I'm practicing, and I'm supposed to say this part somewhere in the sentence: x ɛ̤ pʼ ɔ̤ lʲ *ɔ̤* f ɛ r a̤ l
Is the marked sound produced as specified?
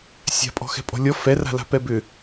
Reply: no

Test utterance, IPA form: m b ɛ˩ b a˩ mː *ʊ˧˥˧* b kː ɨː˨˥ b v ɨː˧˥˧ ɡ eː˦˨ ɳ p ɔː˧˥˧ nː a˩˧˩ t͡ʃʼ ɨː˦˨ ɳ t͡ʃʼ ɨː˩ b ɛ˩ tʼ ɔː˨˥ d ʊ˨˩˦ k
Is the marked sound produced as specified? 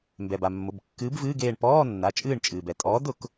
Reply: no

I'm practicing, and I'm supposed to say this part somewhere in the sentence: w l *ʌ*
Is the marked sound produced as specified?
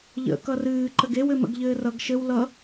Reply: yes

